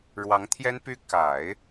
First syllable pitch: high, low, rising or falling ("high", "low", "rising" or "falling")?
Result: rising